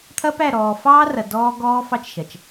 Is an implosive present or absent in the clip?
absent